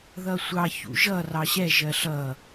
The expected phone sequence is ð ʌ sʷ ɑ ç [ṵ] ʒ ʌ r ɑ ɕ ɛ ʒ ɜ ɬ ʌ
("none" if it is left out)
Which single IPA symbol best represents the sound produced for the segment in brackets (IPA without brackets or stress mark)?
ṵ